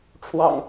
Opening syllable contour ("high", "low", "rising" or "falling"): low